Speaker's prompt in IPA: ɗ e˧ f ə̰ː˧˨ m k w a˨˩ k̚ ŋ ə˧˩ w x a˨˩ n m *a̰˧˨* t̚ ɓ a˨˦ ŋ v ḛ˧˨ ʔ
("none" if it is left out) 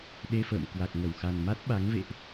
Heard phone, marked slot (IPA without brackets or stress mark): a˦˥